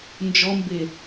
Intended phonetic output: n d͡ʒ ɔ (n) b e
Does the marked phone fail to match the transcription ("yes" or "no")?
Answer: yes